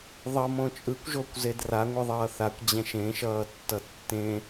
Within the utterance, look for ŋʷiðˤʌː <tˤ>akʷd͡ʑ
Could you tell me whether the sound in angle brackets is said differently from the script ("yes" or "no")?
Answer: yes